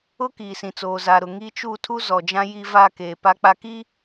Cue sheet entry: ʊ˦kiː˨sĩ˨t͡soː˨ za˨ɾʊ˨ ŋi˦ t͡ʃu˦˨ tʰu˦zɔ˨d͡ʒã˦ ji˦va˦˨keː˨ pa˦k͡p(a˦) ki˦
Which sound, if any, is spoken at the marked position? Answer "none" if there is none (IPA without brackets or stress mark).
a˦